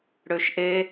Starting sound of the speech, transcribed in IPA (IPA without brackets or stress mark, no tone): ɽ